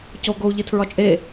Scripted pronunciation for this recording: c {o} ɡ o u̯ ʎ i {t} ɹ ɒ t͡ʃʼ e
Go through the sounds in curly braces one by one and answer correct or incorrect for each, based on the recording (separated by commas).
correct, incorrect